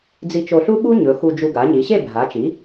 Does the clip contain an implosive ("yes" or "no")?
yes